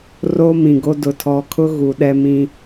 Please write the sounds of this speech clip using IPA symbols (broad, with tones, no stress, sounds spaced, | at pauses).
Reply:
r o˦ m ĩ˨ ɡ o˦ d ʊ˨ tʰ ɔ˨ kʰ ʊ˦ ɣ u˨ ɗ ɛ˦ m ĩ˦